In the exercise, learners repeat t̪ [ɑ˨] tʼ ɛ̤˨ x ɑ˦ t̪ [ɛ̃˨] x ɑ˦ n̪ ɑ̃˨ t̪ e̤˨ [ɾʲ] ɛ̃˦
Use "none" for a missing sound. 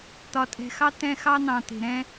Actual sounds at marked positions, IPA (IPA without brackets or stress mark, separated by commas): ɒ˨, ɛ̃˦, ɾ